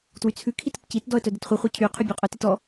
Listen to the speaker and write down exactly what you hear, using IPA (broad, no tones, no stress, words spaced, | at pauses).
twyt͡sʰʉkʰit ətcitdɔə̯ tœdətχʷɯχʷœ cʰyqʰy bʲoqʼœtit ɔ